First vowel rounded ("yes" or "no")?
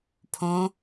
yes